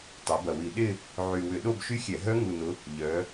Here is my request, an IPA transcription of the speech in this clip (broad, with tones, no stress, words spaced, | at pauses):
tˤɛ˩˧bɐ˨˩wi˧˩˧ɗɪ˥˧ | ʕy˨˩ wʏ˧˩˧ɗo˥˧bʃy˦˥xʲɛ˧˩˧ ɦœ˦˥ŋu˨˩nʊ˩˧ | ʎœ˩˧